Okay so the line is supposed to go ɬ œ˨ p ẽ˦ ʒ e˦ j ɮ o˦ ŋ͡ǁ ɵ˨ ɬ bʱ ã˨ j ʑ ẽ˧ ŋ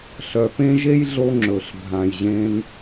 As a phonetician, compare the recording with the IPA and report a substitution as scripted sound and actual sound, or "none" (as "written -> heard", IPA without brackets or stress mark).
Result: none